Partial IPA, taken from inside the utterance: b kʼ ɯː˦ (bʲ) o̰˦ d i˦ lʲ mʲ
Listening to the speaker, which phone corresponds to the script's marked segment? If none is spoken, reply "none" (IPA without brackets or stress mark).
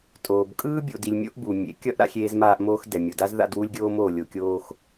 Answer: bʲ